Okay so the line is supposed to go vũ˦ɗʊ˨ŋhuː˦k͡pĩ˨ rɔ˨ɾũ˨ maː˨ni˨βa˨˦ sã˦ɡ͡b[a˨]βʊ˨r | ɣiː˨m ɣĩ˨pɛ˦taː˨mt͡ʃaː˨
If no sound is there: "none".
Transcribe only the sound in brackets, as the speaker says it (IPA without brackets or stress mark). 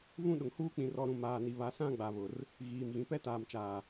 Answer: a˨